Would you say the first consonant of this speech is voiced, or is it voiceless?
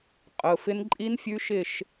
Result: voiceless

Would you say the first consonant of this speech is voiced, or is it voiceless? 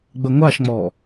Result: voiced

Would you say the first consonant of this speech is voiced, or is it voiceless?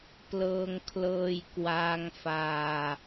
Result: voiceless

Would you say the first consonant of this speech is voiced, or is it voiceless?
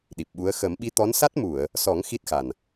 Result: voiced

